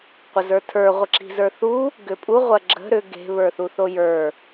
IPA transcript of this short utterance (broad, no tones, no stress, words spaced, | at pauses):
qʷɐzə˞tʰə˞ ʁʷəǁi̤zə˞θu | ɡʏpʼu ʁʷɐɡ͡ǁə̤ ɾʏ ɡe̤ βə˞θuθojə˞